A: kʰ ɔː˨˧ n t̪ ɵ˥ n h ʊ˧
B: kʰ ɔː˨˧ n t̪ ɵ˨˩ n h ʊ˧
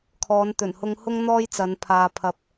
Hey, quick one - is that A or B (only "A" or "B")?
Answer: B